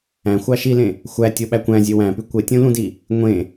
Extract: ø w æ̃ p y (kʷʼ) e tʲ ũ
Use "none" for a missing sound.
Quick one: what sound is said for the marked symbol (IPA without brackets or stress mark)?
kʷ